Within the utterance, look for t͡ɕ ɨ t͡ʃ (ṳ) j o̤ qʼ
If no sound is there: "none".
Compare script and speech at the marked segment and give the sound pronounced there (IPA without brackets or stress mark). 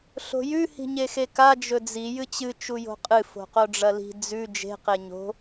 u